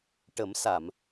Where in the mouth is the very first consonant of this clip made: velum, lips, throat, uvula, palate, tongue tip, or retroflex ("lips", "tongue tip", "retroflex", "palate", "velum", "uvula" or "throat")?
retroflex